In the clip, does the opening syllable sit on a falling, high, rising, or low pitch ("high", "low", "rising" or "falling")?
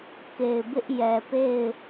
low